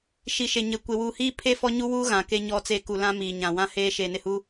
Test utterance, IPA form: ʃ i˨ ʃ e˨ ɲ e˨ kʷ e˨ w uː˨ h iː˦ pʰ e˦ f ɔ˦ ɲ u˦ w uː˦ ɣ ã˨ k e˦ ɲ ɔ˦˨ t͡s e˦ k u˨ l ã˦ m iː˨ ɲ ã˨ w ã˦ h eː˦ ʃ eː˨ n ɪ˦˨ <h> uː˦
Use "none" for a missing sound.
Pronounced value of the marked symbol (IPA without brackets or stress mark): h